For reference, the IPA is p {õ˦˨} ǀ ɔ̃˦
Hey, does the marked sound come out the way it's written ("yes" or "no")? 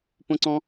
no